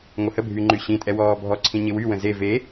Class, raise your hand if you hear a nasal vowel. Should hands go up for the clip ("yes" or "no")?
yes